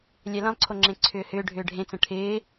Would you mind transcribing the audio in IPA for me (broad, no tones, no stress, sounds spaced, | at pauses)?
lʲ ɛ l ə̃ lˠ ǀʰ o ŋ͡ǁ ẽ ǀʰ ʏː h ʏː ɖʱ ʏː ɖʱ ẽ t͡s ə̃ ʈʰ ɪː